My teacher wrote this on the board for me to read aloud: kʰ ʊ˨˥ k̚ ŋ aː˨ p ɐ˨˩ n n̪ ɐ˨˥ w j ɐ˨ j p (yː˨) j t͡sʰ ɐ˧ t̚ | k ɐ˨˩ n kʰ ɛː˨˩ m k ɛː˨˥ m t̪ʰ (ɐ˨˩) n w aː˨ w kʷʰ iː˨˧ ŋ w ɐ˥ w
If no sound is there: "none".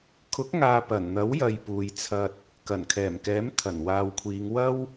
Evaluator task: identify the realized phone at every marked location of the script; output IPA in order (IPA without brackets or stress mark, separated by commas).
uː˨, ɐ˨˩